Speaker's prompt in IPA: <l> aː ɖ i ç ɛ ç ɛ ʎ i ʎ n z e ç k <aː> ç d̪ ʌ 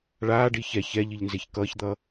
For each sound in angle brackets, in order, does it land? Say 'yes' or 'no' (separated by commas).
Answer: no, no